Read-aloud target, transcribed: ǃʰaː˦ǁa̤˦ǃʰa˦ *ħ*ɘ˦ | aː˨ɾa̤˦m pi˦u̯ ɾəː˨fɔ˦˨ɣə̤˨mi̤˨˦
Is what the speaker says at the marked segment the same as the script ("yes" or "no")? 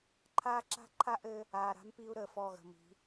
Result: no